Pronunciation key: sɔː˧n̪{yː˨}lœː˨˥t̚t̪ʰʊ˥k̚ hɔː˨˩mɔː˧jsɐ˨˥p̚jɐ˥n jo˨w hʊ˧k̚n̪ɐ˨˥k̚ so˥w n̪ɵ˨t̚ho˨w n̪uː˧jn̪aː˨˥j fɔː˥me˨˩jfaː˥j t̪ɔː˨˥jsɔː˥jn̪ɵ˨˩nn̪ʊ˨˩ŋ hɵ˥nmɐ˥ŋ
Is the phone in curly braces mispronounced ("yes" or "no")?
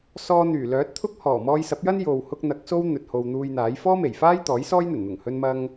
yes